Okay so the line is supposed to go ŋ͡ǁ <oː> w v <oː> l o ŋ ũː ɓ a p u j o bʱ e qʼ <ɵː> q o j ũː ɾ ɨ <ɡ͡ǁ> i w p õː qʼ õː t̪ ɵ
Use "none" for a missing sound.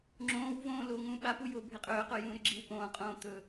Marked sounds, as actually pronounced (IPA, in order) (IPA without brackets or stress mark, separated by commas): õː, õː, ɵː, ɡ͡ǁ